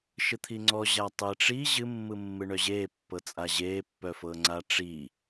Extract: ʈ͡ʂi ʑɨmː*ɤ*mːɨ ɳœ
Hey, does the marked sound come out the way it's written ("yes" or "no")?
no